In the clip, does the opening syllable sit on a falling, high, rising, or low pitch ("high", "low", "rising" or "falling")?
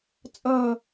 falling